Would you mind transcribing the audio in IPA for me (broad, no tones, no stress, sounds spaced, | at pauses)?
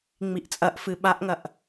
ŋ͡m i ʔ t͡sʼ ɐ ʔ f ɨ ɓ a ʔ ŋ ɐ ʔ